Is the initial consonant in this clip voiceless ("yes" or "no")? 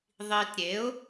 no